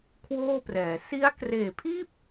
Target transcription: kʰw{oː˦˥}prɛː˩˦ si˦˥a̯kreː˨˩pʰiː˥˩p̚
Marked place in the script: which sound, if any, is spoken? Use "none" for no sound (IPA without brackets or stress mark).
oː˥˩